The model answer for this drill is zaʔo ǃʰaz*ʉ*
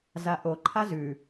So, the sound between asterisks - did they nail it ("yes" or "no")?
yes